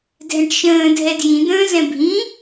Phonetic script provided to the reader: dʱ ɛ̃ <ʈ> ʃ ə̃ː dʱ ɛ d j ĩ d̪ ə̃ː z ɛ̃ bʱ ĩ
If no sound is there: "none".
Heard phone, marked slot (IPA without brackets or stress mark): ʈ